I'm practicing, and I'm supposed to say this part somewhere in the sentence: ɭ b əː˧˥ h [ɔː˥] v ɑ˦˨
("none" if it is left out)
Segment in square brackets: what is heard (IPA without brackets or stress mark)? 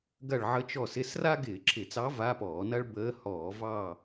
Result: ɔː˧˩˧